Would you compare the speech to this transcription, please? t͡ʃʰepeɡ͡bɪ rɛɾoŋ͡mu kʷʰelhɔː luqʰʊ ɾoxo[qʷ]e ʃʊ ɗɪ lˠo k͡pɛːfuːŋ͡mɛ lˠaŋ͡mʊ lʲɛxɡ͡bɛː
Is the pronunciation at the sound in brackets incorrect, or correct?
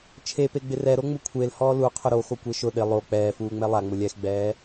incorrect